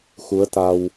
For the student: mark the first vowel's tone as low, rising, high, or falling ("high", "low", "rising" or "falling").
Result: rising